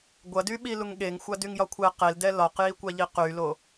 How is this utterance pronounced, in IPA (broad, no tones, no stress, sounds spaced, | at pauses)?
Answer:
ɡʷ ɐ d y ɓ i l u ŋ ɠ e ŋ xʷ a d y ŋ j ɒ kʷʰ ɛ q e l d ɛ l ɒ q j i kʷ a ʎ i q y l o